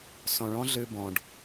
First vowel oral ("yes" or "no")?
no